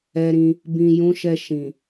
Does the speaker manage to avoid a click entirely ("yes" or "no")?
yes